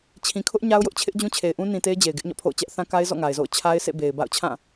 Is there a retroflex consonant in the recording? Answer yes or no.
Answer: no